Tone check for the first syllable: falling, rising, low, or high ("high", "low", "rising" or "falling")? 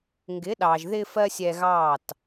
rising